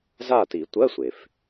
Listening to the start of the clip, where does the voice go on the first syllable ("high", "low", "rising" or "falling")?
falling